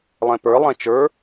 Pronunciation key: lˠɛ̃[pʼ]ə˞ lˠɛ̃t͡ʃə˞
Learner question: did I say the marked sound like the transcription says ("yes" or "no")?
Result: no